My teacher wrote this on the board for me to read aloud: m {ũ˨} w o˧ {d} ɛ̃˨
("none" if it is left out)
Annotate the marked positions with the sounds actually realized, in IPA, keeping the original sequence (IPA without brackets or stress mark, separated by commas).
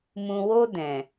ũ˨, d